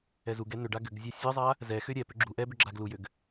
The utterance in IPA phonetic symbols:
ɛ z u ɡ ɛ n ʏ ɖ a ɡ ʏ ɡ zʲ a sʲ ɛ zˤ a | z ɛ x ʏ ɾʲ ɛ p ʏ ɡ͡ǁ u ʔ ɛ b ʏ ɡ͡ǁ a ɡ l u j ʏ ɡ

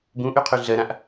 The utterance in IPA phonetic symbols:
b ũ ʔ y qʰ y ɮ ɜ ɾ ã ʔ

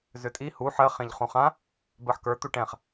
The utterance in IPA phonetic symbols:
z ʏ tʼ i h u ħ ɜ χ ẽ ʎ χ ũ χ ã | b ɜ ħ k ə˞ t̪ u ʈ ɛ̃ χ

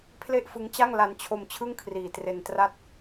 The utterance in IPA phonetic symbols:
pʰ l e˥˩ ʔ f ɯ˦˥ ŋ t͡ɕ a˥˩ ŋ l a˧ n t͡ɕʰ o˧ m t͡ɕʰ ɯ˥˩ ŋ kʰ r iː˨˩ t r e˧ n t r a˥˩ t̚

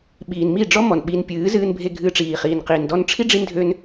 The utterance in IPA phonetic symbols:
ɓ iː˨ n m i˦˨ ɖ͡ʐ ɔ˦ m ɔ˨ n ɓ i˧ n pʲ ɨː˨˦ z ɨː˧ n bʱ e˧ ɡʱ ɨː˧ ʈ͡ʂ iː˨ χ iː˨ n q iː˨ n d ɔ˧ n ʈ͡ʂʰ i˦ ɖ͡ʐ i˦ n dʱ ø˦ n

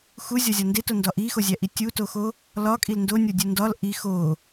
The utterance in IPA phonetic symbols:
x u zʲ ɒ zʲ ɒ n d e t o n d ɒ ʔ i x o zʲ æ ʔ i tʲ u t o x o | l ɒ kʼ i l n d o nʲ o dʲ u n d ɒ l ʔ i x o

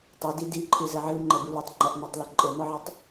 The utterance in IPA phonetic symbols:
tˤ e d i d i ǃʰ ɨ z ɘ ʕ ɨ l ŋ͡ǃ ɛ b u l u tˤ ŋ͡ǃ ɐ ʔ n̪ a tˤ l ɔ ǃʼ ɘ n̪ ɔ ʕ e tˤ

